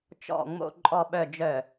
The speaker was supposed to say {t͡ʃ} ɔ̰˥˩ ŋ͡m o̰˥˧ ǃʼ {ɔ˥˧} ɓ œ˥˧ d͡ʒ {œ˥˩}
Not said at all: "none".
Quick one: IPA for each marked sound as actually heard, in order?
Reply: t͡ʃ, ɔ˥˧, œ˥˩

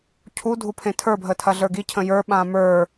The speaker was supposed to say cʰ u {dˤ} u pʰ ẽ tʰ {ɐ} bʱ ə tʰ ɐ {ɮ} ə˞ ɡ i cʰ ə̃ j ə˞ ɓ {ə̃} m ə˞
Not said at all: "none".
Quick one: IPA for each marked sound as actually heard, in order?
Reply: dʱ, ə˞, ɮ, ã

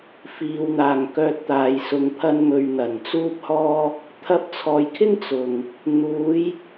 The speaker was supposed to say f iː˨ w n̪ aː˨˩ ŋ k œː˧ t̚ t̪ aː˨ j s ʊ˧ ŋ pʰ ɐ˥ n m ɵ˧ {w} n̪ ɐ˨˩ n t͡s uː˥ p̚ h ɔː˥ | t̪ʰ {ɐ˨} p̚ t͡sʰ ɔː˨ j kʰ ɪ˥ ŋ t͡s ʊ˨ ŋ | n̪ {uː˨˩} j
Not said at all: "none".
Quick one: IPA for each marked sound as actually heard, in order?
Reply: ɥ, ɐ˧, uː˨˧

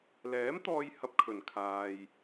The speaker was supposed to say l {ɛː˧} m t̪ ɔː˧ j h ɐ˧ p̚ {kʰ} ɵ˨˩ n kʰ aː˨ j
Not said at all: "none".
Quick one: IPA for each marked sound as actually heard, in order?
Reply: ɛː˨˥, kʰ

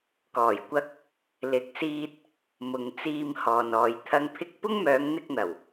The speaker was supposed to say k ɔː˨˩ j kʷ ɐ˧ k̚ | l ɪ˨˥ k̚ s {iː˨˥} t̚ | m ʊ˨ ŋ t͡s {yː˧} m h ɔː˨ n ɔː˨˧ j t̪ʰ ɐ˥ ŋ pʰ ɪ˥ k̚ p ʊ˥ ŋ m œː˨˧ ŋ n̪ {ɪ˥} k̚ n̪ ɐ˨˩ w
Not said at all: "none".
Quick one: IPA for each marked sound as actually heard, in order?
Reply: iː˧, iː˧, ɪ˧

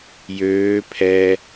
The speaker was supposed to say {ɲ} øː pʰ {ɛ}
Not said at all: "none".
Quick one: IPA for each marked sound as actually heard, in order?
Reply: j, ɛ

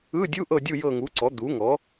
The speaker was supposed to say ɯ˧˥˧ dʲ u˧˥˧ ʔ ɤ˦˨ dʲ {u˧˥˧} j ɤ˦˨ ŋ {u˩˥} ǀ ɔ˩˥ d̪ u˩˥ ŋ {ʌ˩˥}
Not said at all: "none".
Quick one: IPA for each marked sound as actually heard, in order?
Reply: u˦˨, u˩˥, ɔ˩˥

